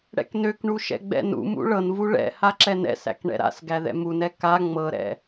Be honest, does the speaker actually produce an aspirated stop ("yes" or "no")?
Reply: no